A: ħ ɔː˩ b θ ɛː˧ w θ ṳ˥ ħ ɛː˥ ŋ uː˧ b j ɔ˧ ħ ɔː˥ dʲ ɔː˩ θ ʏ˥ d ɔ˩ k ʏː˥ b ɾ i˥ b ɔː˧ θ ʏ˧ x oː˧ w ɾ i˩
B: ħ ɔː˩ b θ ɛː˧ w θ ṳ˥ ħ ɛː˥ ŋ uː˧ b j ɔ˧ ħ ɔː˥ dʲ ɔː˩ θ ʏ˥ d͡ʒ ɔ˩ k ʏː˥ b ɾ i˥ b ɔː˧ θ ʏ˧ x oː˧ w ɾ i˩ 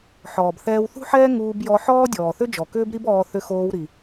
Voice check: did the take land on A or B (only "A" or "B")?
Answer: B